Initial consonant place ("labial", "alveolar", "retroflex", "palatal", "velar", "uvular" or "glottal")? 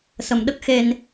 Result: alveolar